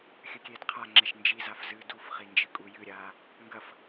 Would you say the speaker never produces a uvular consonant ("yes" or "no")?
no